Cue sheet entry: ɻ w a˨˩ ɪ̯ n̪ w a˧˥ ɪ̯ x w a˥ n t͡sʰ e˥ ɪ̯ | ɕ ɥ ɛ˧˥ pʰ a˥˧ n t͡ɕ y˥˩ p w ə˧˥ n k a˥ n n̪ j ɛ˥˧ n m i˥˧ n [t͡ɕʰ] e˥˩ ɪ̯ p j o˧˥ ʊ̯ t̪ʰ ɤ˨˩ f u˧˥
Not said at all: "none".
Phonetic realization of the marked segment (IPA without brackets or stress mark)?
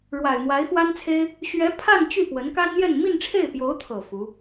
ʈ͡ʂʰ